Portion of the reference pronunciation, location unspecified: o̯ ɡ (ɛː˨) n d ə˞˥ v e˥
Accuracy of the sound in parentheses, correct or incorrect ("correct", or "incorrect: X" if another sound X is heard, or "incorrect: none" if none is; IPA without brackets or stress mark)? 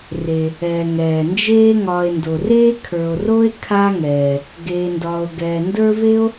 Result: correct